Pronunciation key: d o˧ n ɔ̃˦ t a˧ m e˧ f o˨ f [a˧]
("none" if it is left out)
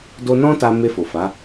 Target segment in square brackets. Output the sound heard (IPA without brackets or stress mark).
a˨˦